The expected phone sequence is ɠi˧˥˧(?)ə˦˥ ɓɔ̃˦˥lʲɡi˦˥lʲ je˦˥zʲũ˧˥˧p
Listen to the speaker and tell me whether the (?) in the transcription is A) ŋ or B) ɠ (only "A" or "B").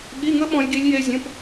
A